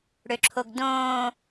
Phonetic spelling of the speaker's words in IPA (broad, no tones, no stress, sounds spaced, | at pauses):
ɽ ø ǁʰ o ɡ d õː